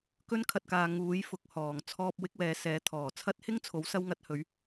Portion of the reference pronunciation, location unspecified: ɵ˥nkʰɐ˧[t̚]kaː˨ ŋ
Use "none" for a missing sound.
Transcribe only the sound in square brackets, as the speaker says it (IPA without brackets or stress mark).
t̚